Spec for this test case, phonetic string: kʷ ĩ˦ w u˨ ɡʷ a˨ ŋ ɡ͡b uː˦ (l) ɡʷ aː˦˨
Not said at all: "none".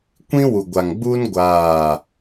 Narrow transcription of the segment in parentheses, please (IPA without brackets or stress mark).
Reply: n